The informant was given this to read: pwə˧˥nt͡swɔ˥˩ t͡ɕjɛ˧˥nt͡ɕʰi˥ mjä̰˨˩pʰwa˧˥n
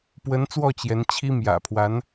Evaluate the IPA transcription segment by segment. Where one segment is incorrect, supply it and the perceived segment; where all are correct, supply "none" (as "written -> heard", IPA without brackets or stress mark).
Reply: none